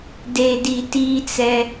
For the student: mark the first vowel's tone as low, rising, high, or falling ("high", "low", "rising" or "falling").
low